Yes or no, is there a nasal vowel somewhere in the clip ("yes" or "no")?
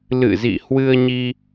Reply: no